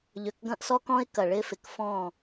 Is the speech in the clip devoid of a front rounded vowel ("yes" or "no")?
no